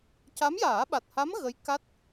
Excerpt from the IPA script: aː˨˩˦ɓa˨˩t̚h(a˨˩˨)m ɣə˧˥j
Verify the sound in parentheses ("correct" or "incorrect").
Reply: incorrect